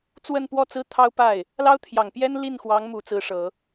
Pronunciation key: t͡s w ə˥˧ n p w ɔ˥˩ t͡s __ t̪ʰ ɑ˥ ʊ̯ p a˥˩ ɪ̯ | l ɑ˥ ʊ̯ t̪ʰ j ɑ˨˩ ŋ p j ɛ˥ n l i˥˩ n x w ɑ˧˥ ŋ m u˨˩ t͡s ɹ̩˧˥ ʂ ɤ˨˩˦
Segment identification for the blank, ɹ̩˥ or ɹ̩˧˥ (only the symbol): ɹ̩˥